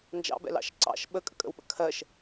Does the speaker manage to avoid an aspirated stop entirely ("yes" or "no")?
no